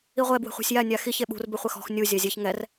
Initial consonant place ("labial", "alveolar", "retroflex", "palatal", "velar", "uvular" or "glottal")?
uvular